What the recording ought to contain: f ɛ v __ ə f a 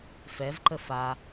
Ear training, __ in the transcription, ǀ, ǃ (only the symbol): ǃ